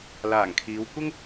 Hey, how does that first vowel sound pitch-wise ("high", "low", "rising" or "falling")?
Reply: low